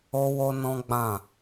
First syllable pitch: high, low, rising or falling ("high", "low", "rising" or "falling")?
high